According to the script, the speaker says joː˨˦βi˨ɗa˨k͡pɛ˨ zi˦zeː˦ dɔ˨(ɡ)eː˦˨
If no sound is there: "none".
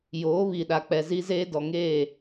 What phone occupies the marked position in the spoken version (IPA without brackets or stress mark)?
ŋ